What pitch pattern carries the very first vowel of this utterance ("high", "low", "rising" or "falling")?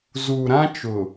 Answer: low